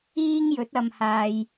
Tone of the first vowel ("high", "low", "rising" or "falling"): high